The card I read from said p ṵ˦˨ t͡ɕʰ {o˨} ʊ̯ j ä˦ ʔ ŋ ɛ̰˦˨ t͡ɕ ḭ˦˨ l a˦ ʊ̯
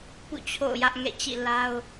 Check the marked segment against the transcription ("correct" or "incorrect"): incorrect